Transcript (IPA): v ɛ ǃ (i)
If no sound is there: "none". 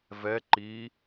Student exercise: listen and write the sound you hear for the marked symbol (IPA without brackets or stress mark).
i